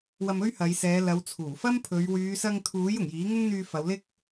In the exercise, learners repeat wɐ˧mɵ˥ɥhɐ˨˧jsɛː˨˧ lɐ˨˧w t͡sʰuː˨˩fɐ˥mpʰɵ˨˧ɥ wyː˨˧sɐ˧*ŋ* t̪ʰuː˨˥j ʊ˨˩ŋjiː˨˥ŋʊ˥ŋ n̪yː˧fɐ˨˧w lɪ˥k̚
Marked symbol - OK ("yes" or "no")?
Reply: yes